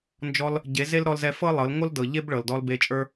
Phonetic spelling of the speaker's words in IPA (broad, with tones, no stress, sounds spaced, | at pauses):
n d͡ʒ ɔ˧ l | ɟ e˨˦ z e˦ l ɾ ɔ˧ l z ɛ˧ f ɤ˦ lˠ ɤ˨˦ l ŋ o˦ l d ɤ˨ ʎ e˦ b ɭ ɤ˨ l d ɔ˧ l b e˧ t͡ʃʼ ə˞˦